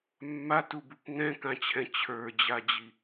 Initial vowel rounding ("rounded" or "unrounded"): unrounded